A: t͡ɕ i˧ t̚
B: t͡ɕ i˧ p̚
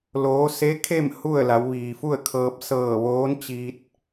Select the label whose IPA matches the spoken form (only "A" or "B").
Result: A